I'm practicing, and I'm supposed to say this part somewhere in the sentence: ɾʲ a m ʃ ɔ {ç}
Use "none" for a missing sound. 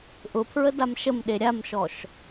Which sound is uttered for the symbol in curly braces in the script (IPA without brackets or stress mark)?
ʃ